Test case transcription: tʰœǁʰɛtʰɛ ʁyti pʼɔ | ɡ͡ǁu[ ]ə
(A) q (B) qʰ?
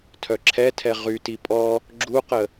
A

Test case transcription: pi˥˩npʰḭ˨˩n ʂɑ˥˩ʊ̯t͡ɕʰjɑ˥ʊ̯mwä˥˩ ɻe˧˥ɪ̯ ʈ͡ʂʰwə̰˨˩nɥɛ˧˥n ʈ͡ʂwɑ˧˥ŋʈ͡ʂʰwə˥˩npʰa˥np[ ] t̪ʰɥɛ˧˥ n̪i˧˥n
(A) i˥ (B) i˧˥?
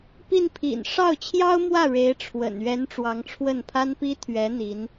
A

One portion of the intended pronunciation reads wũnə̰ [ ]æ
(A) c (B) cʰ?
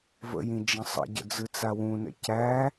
A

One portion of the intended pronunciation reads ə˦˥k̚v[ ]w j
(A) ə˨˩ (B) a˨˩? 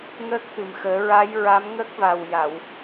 B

